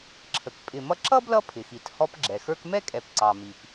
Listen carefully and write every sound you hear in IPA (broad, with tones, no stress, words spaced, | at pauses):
ǁʰə˩k pʼɪ˨mʌ˦ ǁʌ˥blʌ˦ pʰɪ˩xi˩t hɔ˦pɡ͡ǁɛ˩xə˞˥k mɛ˥kʼɛ˨p ǀɑ˩mi˩p